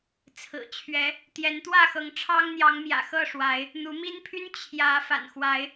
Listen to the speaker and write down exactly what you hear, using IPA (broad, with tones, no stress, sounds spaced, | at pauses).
t͡sʰ ɹ̩˨˩ t͡ɕʰ ɥ ɛ˨˦ | t̪ j ɛ˨˦ n t̪ w ä˥˨ x ɤ˨˦ ŋ ʈ͡ʂʰ ɑ˦ ŋ n̪ j ɑ˨˦ ŋ m j ä̰˨˩ x ɤ˥˨ ʂ w a˨˦ ɪ̯ | n̪ u˨˦ m i˦ n pʰ y˦ n t͡ɕʰ j ä˨˦ f a̰˨˩ n x w a˨˦ ɪ̯